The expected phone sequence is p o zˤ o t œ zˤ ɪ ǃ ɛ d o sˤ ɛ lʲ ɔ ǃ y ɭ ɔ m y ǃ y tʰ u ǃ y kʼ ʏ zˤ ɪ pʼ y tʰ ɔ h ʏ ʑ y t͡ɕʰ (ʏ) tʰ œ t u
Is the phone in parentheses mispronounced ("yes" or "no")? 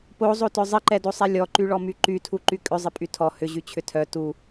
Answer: no